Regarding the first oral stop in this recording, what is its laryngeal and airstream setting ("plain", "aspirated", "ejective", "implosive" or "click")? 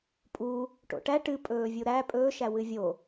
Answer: ejective